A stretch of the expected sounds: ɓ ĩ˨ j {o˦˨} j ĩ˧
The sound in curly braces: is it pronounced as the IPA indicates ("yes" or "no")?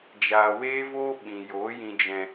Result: no